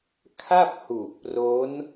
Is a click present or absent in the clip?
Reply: absent